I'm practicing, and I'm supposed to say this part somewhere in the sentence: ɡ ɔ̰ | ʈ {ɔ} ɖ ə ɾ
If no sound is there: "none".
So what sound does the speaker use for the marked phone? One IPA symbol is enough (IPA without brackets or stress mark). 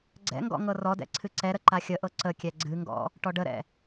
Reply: ɔ